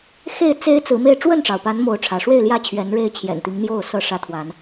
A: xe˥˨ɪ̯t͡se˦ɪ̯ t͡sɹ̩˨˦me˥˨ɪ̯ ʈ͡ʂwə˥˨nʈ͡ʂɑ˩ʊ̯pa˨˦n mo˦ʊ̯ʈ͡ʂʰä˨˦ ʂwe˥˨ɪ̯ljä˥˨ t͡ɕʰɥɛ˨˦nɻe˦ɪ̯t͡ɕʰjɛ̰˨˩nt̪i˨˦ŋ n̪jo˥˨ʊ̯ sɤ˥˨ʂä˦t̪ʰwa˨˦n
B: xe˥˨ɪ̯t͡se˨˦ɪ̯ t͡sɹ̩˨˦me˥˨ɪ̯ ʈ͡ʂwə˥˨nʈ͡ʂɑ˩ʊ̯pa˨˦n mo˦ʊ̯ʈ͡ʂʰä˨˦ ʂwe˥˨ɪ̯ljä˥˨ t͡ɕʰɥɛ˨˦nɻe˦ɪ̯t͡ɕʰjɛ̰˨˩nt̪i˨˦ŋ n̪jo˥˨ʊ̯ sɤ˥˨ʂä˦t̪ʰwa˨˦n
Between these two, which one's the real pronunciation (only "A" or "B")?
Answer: A